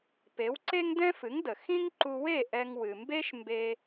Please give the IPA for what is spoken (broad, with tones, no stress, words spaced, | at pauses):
pe˩˥wǀe˥ŋdɛ̃˥ fɨ˩˥ŋdə˩ xĩ˥ŋǃu˧ we˥˩ ʔɛ˧ŋwɨ˩ mbe˥ʃmbe˧